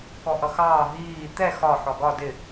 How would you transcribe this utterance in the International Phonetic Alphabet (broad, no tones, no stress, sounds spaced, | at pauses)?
k ɔ ʔ ʌ x ɑː ɦ iː t̪ ɛ x ɒ ħ ɔ ɡ ɒ d ɪ